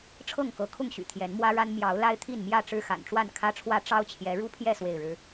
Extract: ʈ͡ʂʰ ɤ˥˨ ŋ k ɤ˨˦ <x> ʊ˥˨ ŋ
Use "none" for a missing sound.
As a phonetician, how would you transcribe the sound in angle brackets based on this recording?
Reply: kʰ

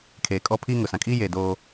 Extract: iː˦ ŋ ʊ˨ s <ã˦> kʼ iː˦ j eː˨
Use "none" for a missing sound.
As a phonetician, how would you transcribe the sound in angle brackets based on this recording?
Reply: ã˨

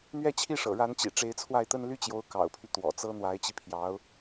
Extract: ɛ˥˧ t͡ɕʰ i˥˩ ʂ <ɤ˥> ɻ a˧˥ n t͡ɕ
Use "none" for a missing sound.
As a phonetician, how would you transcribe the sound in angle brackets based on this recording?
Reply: ɤ̰˨˩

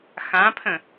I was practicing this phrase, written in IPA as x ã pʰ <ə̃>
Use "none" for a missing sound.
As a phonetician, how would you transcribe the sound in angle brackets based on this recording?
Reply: ə̃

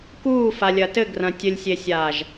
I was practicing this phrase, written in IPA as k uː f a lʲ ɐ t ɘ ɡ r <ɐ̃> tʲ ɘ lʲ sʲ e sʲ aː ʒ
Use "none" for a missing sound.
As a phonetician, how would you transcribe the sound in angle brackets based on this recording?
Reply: ɐ̃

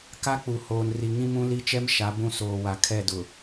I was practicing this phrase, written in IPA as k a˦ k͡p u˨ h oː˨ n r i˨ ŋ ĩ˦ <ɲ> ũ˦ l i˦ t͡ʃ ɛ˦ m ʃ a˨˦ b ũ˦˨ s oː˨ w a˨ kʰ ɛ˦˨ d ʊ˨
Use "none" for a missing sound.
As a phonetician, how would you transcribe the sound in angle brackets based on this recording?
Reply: m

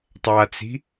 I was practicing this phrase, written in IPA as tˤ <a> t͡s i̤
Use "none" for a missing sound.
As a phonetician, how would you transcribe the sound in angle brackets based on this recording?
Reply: a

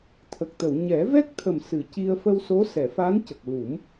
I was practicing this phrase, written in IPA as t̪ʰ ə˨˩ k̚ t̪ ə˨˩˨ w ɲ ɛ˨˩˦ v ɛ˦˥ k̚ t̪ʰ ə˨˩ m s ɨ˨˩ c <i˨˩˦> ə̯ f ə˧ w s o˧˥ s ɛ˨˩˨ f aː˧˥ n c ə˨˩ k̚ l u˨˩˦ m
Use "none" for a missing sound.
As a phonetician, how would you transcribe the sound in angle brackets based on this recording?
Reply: i˧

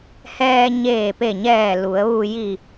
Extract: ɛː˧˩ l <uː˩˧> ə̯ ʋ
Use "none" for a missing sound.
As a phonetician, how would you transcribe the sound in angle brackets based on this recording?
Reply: u˩˧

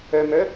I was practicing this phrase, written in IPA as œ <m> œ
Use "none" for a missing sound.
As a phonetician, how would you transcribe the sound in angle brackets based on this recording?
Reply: m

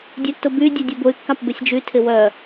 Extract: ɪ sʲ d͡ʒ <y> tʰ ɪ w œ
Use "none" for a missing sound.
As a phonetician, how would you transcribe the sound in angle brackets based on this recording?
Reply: y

